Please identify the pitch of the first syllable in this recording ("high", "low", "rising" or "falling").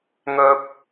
high